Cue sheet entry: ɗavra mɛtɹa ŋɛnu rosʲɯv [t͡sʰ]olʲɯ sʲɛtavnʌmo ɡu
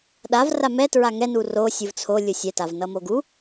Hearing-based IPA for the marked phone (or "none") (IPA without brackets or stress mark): t͡sʰ